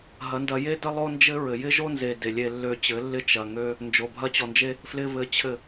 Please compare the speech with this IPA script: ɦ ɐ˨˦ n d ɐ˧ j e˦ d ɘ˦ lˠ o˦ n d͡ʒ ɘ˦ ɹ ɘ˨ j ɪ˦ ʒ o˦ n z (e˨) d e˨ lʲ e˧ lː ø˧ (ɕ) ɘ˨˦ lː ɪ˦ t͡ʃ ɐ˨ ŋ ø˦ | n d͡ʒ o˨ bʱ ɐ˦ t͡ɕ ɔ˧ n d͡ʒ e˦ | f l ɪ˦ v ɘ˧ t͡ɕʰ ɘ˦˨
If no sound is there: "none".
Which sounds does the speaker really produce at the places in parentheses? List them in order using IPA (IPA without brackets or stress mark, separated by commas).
e˨, t͡ɕ